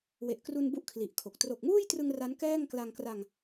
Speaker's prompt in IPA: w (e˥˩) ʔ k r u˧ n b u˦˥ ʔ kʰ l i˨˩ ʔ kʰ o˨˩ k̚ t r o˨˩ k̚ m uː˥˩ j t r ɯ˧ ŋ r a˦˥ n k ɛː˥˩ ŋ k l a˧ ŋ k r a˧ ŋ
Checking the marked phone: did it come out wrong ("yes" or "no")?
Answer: yes